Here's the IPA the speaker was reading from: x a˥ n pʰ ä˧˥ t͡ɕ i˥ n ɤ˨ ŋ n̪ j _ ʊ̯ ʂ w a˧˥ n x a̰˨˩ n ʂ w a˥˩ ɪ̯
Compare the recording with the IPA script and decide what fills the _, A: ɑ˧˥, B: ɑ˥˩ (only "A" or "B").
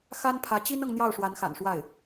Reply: B